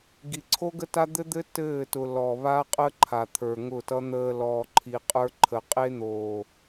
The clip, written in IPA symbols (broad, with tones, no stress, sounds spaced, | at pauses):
ɡ i˨ ǀʰ o˦ ɡ ə˦ t a˦ d̪ ɘ˦ d̪ ɘ˦ t ɘː˦˨ t ʊ˨ l ɔ˨ β a˦ qʼ ə˦ ǃʰ a˨ t̪ʰ ə˞˨ ŋ ʊ˦˨ t ʌ˦ n̪ əː˨ l ɔː˨ ǃʰ i˨ qʼ ə˞˦ ǃʰ ə˨ qʼ e˦ n̪ oː˨